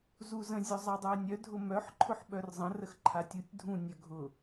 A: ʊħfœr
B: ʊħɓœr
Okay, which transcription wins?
B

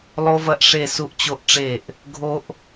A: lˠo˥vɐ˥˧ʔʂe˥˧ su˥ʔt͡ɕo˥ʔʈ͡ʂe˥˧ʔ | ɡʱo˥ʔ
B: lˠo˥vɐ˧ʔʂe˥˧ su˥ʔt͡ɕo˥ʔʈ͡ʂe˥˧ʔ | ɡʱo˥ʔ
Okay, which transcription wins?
A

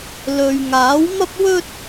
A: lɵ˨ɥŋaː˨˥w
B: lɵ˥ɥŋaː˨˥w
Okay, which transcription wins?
A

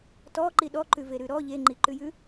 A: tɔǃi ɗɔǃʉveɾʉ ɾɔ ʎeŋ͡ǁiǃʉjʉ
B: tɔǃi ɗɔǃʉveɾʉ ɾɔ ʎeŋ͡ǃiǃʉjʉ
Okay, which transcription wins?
B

